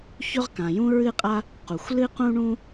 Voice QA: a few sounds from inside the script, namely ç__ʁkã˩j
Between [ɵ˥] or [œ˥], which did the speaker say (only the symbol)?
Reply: ɵ˥